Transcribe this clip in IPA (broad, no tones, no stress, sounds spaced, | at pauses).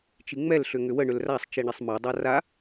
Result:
t͡ʃ i ŋ͡m ɛ l ɬ ʏ ŋ ʏ w ə ɳ ʏ l r a sˤ t͡ʃ i ɳ ɛ sˤ m a dˤ a r a